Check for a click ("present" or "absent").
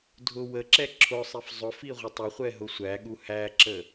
present